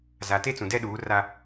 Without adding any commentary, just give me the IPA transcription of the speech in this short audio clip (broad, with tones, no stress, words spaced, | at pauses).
za˨ te˦t͡sũ˨dɛ˦ ɗuː˨˦ra˦